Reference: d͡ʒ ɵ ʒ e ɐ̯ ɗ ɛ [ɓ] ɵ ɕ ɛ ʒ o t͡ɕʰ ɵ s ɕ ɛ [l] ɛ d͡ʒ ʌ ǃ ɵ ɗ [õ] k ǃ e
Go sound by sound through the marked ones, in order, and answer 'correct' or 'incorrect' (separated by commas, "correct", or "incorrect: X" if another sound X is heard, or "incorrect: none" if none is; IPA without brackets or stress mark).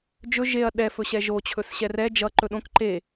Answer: incorrect: f, incorrect: r, correct